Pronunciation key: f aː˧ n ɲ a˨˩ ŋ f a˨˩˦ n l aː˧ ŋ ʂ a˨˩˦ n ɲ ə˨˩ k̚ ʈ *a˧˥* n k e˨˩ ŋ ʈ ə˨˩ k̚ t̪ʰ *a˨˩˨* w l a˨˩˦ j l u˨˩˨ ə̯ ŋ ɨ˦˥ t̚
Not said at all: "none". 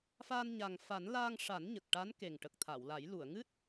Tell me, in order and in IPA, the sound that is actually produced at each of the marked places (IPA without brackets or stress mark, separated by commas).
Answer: a˧˥, a˨˩˨